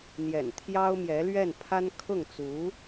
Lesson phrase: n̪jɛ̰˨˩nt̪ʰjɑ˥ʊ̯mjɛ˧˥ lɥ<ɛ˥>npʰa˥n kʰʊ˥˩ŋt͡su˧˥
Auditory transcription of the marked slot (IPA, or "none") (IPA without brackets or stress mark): ɛ˥˩